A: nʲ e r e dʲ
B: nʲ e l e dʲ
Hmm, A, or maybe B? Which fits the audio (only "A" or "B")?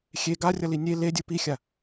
B